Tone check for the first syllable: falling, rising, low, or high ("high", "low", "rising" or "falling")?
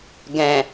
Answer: low